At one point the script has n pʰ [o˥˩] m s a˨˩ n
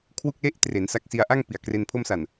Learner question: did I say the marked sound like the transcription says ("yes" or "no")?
no